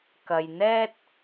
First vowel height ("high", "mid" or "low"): low